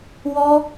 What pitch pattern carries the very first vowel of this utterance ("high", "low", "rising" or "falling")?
high